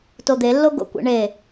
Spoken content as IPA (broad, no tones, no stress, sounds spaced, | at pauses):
t o d̪ e lː o ɡ o̰ kʷ ḛ ɳ e